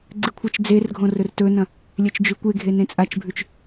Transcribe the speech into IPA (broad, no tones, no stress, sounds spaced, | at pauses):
ɡ͡ǀ ɨ kʷʰ ɐ t͡ʃ d͡z e r ɡʱ õ r ɵ r t ɵ n ɐ̃ | lʲ e t͡ʃ d͡ʒ ʉ kʷ e ɡʱ e n ẽ t͡sʼ a t͡ʃ bʱ ʉ t͡ʃ